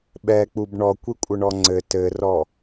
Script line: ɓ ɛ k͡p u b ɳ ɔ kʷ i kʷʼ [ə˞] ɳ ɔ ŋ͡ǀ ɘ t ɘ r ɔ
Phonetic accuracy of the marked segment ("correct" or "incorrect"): incorrect